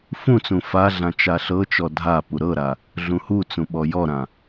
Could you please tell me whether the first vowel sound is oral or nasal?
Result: nasal